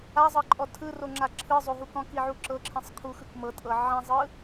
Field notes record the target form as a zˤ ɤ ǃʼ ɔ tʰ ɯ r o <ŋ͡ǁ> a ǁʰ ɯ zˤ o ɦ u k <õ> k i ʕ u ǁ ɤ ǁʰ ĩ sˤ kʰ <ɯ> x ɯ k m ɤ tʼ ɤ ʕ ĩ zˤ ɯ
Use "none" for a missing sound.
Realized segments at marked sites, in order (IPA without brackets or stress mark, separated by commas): ŋ͡ǁ, ɔ̃, u